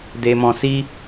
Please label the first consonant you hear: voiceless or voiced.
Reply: voiced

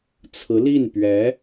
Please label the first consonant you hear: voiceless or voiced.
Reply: voiceless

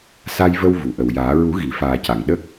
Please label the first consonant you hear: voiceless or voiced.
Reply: voiceless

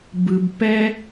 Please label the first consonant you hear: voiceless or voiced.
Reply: voiced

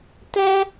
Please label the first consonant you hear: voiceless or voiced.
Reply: voiceless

